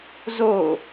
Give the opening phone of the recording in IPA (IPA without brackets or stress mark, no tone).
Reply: z